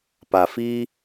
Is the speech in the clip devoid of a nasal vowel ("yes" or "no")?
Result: yes